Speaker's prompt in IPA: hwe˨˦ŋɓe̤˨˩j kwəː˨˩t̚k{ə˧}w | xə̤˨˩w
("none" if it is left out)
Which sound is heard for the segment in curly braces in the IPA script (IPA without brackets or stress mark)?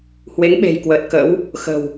ə̰˧˥